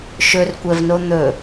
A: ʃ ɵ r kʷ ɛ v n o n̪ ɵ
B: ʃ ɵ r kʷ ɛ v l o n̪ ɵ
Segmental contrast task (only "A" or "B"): A